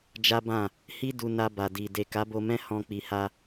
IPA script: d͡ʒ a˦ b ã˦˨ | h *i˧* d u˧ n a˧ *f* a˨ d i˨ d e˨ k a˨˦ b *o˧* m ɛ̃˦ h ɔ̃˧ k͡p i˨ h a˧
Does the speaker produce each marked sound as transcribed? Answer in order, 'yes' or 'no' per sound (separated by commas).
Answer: no, no, yes